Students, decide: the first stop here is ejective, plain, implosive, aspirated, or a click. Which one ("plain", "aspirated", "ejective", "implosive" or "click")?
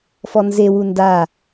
plain